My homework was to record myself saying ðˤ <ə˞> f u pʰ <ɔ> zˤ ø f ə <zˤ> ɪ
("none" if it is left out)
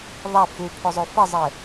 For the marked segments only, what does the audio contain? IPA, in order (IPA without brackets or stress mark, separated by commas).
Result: ɐ, ʊ, zˤ